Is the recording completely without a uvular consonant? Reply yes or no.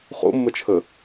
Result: no